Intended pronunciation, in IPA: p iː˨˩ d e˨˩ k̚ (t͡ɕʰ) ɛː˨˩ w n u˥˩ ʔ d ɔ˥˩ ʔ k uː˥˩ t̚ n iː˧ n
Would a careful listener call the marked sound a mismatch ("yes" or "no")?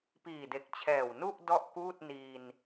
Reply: no